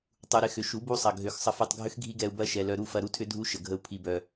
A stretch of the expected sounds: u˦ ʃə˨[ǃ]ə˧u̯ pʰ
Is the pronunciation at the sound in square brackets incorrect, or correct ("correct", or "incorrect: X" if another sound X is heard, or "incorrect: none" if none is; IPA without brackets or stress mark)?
incorrect: ɡʱ